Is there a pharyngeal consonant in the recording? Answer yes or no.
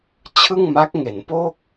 no